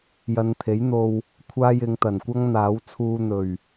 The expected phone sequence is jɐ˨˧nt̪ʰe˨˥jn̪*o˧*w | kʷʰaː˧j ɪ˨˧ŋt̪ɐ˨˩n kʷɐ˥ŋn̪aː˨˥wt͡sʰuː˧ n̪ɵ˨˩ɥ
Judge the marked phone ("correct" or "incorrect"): correct